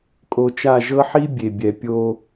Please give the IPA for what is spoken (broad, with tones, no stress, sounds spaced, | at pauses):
kʼ o˨ t͡ʃ a˦˨ ʒ ɤ˦ ħ i˦ bʲ e˨ bʲ ɛ˨ pʲ o˦